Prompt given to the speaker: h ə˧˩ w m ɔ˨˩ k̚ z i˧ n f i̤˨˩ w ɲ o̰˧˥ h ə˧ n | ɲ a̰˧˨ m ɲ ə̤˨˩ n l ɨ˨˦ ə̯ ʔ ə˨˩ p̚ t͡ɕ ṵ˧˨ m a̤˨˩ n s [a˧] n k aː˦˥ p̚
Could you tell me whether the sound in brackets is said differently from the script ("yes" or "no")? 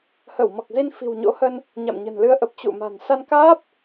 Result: no